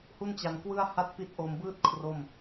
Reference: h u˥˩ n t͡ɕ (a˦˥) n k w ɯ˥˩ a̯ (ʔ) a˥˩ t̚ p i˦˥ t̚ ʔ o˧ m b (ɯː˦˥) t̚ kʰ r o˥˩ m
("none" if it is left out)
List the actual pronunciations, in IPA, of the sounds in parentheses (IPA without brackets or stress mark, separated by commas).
a˧, h, ɯː˥˩